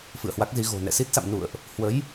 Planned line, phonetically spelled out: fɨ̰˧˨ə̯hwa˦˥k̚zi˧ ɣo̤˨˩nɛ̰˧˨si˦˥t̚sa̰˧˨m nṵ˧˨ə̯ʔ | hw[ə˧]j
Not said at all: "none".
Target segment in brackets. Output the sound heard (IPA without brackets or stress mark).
ə˨˦